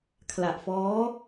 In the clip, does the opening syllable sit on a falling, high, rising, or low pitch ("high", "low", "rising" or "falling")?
low